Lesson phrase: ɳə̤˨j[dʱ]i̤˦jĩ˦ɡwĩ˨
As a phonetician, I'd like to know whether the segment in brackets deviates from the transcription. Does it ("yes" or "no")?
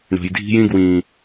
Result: no